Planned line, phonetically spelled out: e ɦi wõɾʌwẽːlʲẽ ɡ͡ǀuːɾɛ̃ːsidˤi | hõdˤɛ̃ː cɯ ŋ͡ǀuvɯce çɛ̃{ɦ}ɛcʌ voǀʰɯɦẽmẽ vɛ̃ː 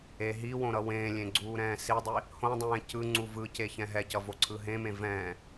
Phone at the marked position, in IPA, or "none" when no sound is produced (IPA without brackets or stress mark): ɦ